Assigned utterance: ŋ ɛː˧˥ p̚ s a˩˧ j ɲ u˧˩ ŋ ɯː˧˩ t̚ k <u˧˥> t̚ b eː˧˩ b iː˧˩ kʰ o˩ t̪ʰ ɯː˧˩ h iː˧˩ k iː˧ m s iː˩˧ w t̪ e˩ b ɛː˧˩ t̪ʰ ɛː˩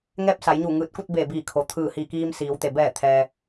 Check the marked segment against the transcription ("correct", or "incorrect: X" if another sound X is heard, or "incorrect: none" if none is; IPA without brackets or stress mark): incorrect: u˥˨